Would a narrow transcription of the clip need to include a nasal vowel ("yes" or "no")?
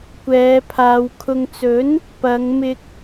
no